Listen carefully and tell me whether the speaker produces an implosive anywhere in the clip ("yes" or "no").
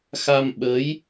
yes